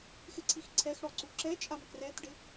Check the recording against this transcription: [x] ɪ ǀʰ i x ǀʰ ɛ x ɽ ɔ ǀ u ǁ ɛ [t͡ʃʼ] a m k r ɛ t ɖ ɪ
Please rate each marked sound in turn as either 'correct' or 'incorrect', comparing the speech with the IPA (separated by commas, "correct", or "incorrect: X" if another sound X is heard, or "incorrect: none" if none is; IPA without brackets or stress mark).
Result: correct, correct